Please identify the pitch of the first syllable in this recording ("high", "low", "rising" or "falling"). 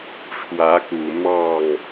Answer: rising